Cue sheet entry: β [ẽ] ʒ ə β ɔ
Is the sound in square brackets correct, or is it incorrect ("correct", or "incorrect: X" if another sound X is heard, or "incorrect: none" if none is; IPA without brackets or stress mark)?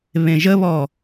correct